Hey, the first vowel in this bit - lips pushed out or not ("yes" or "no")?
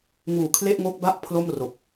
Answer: yes